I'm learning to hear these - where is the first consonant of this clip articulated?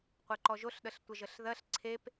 uvula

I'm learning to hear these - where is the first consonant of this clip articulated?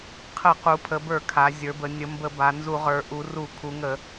uvula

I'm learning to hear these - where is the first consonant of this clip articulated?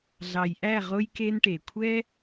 tongue tip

